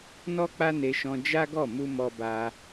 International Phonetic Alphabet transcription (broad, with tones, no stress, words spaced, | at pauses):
nɔ˦k͡pa˦ne˧ʃɔ̃˧ d͡ʒa˦ɡɔ˦˨ mu˧ mɔ˧ba˧